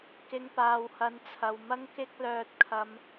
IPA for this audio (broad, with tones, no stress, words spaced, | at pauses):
kɪ˨˧ŋpaː˨whɐ˨˥nt͡sʰɐ˨w mɐ˥ŋkɪ˥k̚ lœː˥t̚kʰɐ˥m